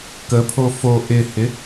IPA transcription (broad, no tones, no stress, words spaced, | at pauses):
kəpʰo fo ʔɪhɪ